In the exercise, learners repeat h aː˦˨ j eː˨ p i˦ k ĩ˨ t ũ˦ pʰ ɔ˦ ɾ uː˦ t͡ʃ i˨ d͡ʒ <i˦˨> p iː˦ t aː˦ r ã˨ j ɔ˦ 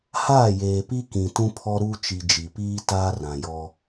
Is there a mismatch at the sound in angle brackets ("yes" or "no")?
yes